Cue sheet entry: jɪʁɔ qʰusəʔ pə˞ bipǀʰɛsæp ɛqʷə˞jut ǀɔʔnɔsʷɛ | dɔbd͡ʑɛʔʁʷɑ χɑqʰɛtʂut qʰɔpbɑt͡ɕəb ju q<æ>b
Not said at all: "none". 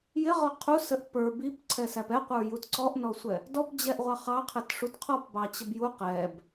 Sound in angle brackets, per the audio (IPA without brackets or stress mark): ɛ